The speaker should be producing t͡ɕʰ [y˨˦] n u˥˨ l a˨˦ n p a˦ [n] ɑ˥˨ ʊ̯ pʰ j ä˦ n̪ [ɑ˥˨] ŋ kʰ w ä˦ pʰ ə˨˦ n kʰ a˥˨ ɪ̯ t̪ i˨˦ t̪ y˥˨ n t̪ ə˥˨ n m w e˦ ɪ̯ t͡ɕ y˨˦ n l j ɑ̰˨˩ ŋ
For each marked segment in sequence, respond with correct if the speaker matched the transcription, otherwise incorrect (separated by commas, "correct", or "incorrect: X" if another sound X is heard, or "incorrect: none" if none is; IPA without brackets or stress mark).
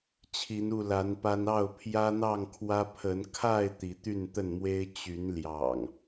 incorrect: i˨˦, correct, correct